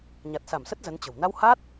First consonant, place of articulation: palatal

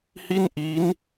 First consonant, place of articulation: glottal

